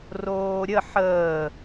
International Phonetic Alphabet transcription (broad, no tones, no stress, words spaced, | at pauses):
roːɾʲə ħəː